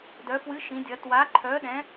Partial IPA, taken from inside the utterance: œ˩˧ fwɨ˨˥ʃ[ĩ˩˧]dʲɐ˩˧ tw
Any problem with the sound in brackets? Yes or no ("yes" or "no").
no